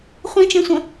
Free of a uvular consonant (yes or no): no